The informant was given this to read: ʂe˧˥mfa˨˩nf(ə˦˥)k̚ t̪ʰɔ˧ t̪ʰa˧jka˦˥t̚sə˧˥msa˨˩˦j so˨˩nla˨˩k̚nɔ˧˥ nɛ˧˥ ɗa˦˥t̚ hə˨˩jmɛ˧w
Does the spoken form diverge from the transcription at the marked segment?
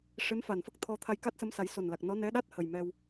no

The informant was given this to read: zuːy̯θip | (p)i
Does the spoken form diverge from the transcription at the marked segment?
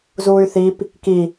yes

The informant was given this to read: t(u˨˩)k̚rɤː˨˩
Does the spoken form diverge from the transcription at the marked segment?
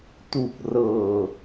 no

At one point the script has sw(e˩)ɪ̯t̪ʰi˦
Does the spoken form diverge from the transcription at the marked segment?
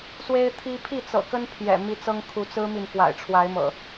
yes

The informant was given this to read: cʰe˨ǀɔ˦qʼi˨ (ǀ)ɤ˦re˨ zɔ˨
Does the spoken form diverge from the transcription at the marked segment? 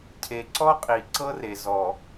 no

